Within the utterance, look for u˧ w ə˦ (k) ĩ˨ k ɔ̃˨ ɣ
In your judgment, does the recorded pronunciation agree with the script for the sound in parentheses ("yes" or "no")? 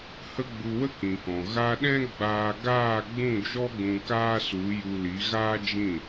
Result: yes